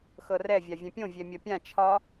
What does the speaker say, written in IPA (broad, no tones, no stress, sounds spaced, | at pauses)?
x ɤ r ɛ vʲ a vʲ ɛ̃ pʲ õ vʲ ɛ mʲ ʌ pʲ ã t͡ʃʰ ɒ